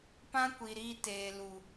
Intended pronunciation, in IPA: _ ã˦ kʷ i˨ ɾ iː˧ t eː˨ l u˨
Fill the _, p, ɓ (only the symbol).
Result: p